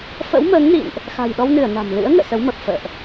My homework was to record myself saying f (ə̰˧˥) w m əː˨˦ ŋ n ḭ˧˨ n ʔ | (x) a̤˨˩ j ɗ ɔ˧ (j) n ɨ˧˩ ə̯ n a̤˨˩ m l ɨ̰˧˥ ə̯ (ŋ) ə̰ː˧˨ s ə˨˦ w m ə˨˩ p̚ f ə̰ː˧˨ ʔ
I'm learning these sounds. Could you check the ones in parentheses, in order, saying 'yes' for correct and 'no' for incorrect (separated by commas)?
yes, yes, no, yes